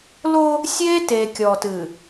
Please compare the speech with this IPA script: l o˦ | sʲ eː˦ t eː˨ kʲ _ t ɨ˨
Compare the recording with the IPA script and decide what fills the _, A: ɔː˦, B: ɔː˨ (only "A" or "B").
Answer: B